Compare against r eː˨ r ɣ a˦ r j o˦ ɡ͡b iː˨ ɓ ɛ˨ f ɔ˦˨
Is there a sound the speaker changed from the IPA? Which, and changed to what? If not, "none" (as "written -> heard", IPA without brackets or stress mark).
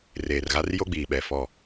none